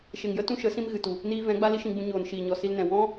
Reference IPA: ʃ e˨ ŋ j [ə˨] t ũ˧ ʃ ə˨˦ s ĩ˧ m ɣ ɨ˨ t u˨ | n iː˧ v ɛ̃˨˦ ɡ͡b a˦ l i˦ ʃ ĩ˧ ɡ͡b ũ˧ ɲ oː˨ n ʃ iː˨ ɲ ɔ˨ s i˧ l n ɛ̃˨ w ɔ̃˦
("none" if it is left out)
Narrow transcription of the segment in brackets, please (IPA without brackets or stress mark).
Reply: ə˦